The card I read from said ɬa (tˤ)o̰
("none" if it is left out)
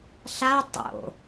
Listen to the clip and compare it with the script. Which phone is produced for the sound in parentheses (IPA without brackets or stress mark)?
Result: tˤ